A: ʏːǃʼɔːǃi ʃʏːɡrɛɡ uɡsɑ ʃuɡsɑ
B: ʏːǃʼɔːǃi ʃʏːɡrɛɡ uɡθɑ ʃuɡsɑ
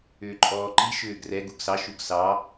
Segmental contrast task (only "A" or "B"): A